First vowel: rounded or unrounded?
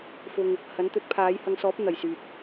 rounded